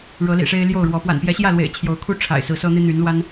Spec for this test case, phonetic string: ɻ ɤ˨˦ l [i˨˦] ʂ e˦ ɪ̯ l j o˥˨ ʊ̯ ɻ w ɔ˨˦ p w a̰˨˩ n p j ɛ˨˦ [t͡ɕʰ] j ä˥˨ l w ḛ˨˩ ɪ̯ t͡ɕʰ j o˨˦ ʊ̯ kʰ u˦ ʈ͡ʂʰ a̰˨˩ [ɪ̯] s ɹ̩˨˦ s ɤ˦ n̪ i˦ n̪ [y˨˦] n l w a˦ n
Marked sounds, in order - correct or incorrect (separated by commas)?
incorrect, incorrect, correct, correct